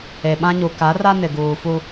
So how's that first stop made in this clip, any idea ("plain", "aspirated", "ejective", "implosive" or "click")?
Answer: implosive